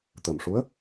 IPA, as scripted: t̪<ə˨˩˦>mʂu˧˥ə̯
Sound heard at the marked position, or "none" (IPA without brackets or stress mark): ə˨˩